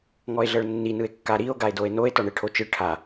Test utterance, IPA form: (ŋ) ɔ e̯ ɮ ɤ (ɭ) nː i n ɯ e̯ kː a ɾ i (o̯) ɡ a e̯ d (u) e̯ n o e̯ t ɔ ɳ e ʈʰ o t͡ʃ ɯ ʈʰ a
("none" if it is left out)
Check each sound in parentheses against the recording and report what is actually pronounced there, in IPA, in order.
ŋ, ɭ, o̯, o

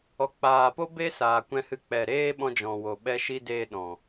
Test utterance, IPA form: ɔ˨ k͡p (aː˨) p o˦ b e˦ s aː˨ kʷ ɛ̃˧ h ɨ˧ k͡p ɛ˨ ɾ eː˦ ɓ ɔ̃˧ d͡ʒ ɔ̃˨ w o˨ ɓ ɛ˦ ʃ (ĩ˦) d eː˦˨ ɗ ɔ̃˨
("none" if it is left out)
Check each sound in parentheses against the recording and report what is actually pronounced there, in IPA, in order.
aː˨, i˦

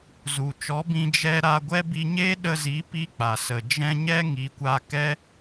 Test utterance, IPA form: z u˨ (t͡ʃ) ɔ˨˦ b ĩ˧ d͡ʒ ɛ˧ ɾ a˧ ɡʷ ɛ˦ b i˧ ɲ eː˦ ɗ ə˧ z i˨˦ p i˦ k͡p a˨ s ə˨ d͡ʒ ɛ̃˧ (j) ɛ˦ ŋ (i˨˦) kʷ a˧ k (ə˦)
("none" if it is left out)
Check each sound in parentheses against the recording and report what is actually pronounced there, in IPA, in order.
t͡ʃ, ɲ, i˨˦, ɛ˦

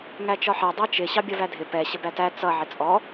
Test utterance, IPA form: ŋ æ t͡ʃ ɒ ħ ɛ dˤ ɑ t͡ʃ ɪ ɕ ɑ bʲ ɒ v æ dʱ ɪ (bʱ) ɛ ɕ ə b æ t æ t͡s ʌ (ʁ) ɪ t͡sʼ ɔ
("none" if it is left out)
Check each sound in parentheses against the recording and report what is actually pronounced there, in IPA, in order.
p, ʕ

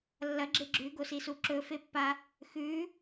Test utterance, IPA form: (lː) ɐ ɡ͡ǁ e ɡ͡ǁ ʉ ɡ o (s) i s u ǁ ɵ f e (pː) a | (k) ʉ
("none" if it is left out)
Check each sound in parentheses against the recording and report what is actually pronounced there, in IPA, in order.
lː, s, pː, x

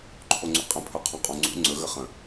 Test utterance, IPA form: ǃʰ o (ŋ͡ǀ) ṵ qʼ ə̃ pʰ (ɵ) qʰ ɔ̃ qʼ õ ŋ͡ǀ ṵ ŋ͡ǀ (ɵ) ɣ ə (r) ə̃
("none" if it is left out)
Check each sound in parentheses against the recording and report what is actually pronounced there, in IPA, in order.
ŋ͡ǀ, ɵ, ɵ, χ

